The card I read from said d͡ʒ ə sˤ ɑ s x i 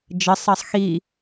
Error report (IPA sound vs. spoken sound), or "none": s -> sˤ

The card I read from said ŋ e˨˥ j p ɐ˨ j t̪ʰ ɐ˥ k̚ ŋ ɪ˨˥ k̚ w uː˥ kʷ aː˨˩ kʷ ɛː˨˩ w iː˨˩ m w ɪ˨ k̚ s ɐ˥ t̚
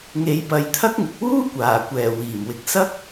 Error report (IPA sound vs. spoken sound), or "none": t̚ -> k̚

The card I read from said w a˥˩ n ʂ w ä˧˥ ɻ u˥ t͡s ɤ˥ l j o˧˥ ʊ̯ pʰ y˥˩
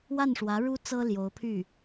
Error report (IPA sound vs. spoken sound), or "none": none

